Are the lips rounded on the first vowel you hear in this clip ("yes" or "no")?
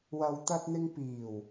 no